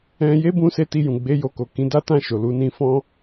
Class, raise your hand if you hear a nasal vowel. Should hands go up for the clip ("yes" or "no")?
yes